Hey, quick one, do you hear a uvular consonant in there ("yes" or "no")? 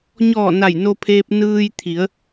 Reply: no